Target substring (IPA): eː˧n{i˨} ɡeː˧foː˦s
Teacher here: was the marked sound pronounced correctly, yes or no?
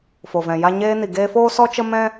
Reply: yes